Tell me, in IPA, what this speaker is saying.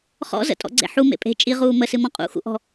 χ ɔ̰ z ə̰ tʼ ɔ̰ ɡ͡ǀ ḛ ħ u m ḛ pʼ e̤ t͡ʃʼ i ʁ uː m ə s ɨ m ɔ̃ qʼ ṵ x ṵ ʔ ɔ̤

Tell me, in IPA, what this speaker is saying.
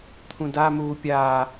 t̪ʰ ũ d a m uː pʲ aː

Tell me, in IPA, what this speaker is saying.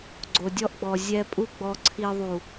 ɡ͡ǀ o˨ dʲ ɔ˧ ʔ ɡ͡b ɔ˨ zʲ ɛ˧ pʼ u˦ ɡ͡b ɔ˧ ǀʰ i˨ ðˤ u˨

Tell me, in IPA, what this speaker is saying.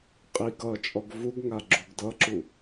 qʼ i ɡ ʌ t͡ʃʼ ɔ ɡ v u ɡ ŋ a ɡ͡ǁ u ɡ d ʌ ǁ u

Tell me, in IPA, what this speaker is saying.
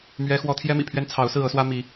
m ɥ ɛ˥ x w ɔ˥ t̪ʰ j ɛ˥ m ḭ˨˩ pʰ ɥ ɛ˥ n t͡sʰ ɑ˧˥ ʊ̯ s ɹ̩˥˩ ɤ˥ s w ä˥ m i˧˥

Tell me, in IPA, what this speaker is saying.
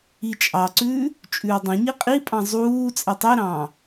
i t͡ʃʼ ɑ ǀ ʉː | t͡ʃʼ ʉː dˤ ɛ̃ ɲ i qʼ i pʼ ɑ̃ zˤ uː t͡sʼ ɛ tˤ i ɾ ɑ̃ː

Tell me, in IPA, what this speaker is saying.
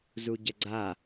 z u ɟ ɐ ɡ͡ǀ a

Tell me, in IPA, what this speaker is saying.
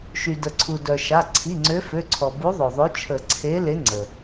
ʃ y˩ d ə˩ ǀʰ u˩ d œ˩ ʃ a˩˧˩ ǀʰ i˩˧˩ ŋ͡ǀ ø˨˦ f ø˩˧˩ ǀʰ ɔ˩ b u˨˦ ðˤ o˩ ðˤ ø˨˦ t͡ʃʰ ə˨˩˦ ǀʰ e˨˦ l e˨˦ ŋ͡ǀ ə˩

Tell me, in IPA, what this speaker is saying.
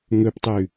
ŋ ɵ p tˤ ʉ

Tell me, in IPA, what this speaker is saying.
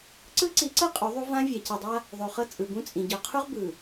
ǀ ɯ˦ ǀ i˨˦ ǀ ɤ˦ qʼ u˨˦ ðˤ u˦ v ã˦ vʲ a˨ c i˨ dˤ a˦ | ðˤ o˨ χ ɤ˦ t͡sʼ ɯ˨ b ũ˦ t͡sʼ ĩ˨ ɟ ɔ˨ qʰ u˦ ʁ b ɯ˨

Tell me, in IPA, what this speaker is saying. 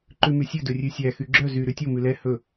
ǃ ʉ m y sʲ ɵ d ɵ rʲ ʉ sʲ æ x y ɡ͡ǁ œ z y ɾ ʉ tʲ o m ʉ l ɛ h ɵ

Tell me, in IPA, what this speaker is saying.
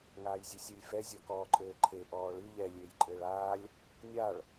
ŋ aː j zʲ ɨ sʲ e lʲ f ɛ zʲ ɔ k ɔː ǃʼ ɘː ǃʰ e ʔ ɔː ɭ ɨ ʎ ɛ lʲ eː j ǃʼ ɘː ɭ aː lʲ | nʲ a ɭ

